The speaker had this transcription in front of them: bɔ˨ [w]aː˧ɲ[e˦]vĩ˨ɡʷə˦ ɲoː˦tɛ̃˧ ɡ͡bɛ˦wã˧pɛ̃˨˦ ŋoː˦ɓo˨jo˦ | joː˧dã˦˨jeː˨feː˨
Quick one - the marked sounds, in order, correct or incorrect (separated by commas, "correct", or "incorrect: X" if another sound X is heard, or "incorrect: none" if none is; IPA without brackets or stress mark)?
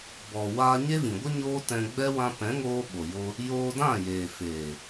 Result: correct, correct